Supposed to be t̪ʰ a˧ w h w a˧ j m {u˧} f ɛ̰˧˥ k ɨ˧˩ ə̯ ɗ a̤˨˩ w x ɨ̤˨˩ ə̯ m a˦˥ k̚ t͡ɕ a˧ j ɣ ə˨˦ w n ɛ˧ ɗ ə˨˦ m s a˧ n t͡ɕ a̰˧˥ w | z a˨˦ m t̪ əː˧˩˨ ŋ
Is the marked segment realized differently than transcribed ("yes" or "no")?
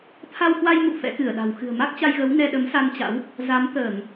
yes